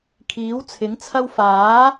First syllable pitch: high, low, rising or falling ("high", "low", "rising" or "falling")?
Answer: rising